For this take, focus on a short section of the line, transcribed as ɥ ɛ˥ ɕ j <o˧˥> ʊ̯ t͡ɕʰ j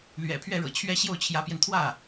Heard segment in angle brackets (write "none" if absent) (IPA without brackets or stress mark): o˥˩